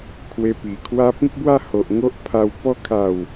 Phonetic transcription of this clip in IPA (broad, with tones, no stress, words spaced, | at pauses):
kʰwe˧pi˨˩kʰwa˦ pĩ˦k̚bwa˥˧ ho˨ʔŋo˦ʔ pʰa˧w pɔ˧kʰa˨˩w